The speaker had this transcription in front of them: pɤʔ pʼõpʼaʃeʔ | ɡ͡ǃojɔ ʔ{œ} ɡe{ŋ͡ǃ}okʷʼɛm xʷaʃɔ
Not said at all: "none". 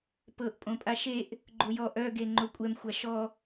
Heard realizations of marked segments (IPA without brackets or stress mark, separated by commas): œ, ŋ͡ǃ